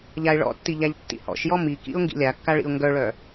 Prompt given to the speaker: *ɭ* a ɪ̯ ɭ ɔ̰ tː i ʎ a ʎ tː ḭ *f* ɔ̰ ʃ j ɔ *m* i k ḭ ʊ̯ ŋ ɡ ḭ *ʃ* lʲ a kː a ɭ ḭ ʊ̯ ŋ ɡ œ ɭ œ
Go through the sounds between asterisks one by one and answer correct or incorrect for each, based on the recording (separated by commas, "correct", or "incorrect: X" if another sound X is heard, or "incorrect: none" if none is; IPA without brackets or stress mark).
incorrect: ʎ, incorrect: h, correct, incorrect: none